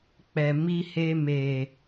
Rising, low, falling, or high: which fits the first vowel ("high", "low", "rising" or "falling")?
low